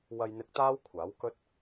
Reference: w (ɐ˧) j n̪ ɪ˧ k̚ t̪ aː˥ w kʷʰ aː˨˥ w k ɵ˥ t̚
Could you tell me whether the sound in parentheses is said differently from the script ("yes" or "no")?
no